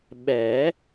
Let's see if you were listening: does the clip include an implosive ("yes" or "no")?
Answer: yes